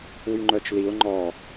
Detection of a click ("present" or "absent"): present